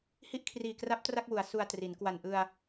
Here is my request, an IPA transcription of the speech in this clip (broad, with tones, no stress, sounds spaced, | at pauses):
h i˦˥ ʔ kʰ r iː˨˩ k r a˦˥ p̚ t r a˥˩ k̚ w u˩˦ a̯ s u˧ a̯ t r i˩˦ n k w a˨˩ n ʔ ɯ˧ a̯